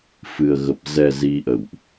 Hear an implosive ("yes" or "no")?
no